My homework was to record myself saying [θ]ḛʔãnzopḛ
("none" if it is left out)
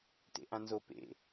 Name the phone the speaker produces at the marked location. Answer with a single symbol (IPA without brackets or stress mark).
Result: t